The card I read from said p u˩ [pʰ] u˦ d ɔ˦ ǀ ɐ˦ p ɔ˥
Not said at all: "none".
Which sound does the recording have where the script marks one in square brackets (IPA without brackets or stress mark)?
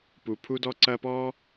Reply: pʰ